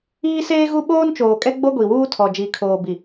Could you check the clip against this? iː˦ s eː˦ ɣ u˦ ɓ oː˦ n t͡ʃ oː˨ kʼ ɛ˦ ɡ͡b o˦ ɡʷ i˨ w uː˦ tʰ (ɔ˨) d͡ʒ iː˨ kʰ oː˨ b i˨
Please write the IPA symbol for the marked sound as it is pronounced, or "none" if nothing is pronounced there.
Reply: ɔ˨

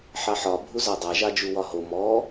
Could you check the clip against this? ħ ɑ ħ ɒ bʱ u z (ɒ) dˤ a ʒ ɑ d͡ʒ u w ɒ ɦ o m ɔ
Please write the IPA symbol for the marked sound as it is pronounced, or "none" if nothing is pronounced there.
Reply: ɑ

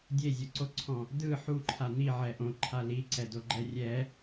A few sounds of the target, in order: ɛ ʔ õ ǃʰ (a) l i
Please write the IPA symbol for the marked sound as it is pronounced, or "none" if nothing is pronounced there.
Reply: a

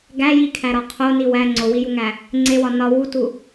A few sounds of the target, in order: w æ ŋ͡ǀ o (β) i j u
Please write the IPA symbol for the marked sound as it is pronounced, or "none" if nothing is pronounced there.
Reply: w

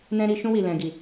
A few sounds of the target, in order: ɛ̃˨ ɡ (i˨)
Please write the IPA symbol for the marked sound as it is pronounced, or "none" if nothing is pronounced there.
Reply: i˨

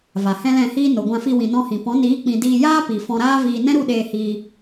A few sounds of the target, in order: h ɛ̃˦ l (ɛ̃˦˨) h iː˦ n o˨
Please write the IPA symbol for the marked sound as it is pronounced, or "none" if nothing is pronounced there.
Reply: ɛ̃˦˨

